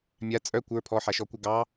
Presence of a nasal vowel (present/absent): absent